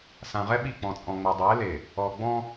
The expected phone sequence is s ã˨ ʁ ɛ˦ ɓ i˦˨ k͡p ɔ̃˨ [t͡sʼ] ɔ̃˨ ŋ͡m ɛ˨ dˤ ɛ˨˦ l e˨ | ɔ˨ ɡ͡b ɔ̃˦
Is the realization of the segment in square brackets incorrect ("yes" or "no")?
no